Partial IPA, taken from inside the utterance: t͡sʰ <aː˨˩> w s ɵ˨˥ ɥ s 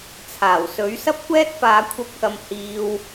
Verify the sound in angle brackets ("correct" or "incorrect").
correct